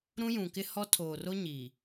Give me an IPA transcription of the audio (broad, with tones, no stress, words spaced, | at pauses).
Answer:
ɾũ˦jũ˨kɪ˦hɔ˦ tʰo˨ro˦ɲi˨